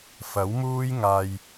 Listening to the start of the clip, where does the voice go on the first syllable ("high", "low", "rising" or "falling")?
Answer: rising